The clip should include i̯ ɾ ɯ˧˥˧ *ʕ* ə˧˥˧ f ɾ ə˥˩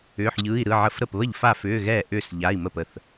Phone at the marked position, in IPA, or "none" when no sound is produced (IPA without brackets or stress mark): ʕ